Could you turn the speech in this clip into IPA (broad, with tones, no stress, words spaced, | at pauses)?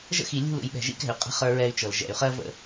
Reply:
ʒə̰˦xi˨lʲṳ˦˨l ṵ˨jɓɛ̤˨ ʒḭ˦kɛ̤˨y̯qʼə̤˦ χə˞˦ɹɛ˦y̯t͡ʃɤ˨l ʒɛ̰˨y̯χɜ˦və̰˦˨